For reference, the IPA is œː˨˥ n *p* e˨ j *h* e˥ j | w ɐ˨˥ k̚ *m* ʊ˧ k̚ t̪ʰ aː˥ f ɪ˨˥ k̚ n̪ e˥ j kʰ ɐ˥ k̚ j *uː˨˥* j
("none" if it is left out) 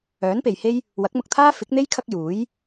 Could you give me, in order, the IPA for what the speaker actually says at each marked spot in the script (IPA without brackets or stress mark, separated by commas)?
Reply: p, h, m, uː˨˥